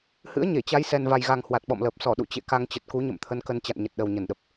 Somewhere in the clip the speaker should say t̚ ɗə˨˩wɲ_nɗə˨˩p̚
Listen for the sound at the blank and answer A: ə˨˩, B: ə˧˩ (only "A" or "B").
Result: B